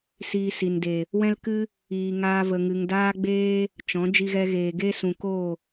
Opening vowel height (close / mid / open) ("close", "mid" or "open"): close